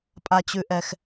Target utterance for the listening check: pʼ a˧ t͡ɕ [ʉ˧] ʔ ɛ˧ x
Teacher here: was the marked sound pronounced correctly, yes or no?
yes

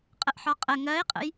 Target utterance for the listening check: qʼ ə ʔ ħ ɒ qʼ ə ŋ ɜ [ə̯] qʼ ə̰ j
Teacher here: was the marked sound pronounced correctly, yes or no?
no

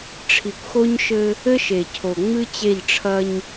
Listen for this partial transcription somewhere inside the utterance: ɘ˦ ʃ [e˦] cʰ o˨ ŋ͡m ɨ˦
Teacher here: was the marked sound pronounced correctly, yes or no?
no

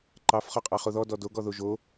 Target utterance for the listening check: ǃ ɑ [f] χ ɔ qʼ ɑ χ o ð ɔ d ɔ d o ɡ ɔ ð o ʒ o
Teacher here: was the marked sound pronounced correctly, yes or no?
yes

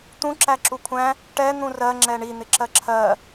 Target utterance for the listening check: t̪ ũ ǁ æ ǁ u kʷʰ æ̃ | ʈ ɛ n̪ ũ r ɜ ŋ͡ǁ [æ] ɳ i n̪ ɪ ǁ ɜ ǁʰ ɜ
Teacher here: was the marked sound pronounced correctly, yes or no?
no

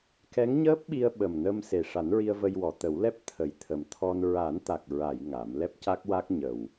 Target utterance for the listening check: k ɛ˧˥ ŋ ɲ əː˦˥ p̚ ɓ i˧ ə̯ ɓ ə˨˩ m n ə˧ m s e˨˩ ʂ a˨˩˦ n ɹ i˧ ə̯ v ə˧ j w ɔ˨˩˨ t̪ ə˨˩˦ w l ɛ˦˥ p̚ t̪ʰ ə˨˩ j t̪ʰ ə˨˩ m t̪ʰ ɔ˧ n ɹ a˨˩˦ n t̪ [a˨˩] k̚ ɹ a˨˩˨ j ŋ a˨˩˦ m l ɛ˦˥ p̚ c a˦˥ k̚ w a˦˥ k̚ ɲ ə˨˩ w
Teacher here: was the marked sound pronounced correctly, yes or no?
yes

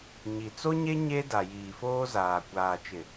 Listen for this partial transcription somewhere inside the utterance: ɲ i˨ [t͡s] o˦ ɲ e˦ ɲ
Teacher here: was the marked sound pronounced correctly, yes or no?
yes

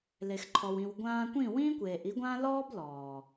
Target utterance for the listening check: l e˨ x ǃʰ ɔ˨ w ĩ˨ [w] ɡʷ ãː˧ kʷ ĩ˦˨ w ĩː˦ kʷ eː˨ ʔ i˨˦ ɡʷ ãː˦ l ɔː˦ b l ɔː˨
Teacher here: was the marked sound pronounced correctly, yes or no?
yes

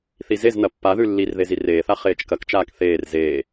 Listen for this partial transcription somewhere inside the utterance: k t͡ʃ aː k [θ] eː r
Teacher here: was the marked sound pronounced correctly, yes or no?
yes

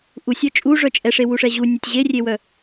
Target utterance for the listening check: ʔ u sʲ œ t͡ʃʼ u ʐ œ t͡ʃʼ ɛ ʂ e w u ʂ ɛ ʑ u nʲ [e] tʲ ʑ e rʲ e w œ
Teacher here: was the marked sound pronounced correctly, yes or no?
yes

